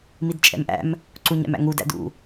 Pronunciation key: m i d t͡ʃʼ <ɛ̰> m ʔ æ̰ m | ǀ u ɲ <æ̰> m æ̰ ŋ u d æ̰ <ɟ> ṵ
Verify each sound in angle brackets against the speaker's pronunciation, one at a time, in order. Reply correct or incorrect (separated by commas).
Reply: correct, correct, incorrect